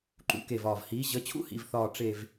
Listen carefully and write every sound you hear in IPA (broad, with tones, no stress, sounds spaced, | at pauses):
ǃ ṵ˩˧ k e˨˩ v ɒː˨˩ v h iː˩˧ ʑ ə˩˧ t͡ɕʰ ṵ˦˥ h ḭ˨˩ v θ ɒː˨˩ ʈ͡ʂ e˨˩ v